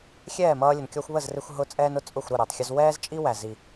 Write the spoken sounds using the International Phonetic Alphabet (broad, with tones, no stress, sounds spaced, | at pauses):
xʲ ɛː˥˩ m ʌː˧ lʲ ə˩ n kʲ ɔ˧ xʷ β ə˥˩ z r ɪ˧ xʷ ɦ ʊ˧ t͡sʼ ɛː˧ n ʊ˩˥ t͡sʼ ʊ˥˩ xʷ ɾ ʊ˥˩ ɾ ɛ˩ tˤ xʲ ʊ˧ z w ɛː˥ z t͡ʃʼ i˥ w æ˩ z i˩